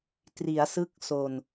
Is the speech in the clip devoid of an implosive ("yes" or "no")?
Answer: yes